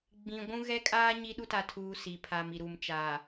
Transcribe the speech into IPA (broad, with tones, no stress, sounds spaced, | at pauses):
ɡ͡b ĩ˨ ɡʷ ũ˦ ɣ ɛ˦ kʼ aː˦ ɲ i˦ ɗ u˦ t a˨ tʰ uː˨ s i˨ pʰ aː˨ m i˨ ɾ uː˨ m t͡ʃ aː˨